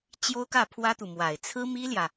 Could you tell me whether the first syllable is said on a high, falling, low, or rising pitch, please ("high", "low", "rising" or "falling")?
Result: high